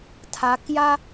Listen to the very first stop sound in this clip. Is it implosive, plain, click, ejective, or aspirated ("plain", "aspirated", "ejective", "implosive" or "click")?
aspirated